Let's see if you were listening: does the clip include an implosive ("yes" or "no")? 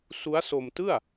no